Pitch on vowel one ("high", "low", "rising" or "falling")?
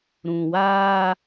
low